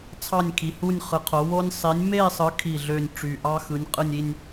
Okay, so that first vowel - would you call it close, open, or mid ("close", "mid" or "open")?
open